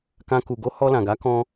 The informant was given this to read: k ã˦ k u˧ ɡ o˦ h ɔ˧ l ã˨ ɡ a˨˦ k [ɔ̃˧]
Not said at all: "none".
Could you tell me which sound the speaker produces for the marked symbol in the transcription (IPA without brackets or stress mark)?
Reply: ɔ̃˧